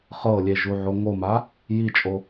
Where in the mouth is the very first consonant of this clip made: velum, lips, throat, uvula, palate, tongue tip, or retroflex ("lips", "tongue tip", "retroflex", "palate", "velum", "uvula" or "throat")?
uvula